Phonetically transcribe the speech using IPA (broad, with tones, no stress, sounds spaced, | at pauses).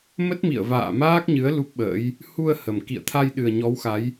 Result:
m ə˦˥ t̚ m ḭ˧˨ ə̯ v a̰ː˧˨ m aː˦˥ k̚ ɲ ɨ˨˦ ə̯ l u˦˥ p̚ ɓ ə̰ː˧˥ j | h u˧ ə̯ h ə˨˩ m k ḭ˧˨ ə̯ t̪ʰ a˧ j ɗ ɨ˨˩ ə̯ ɲ ɔ˨˦ w x a˨˦ j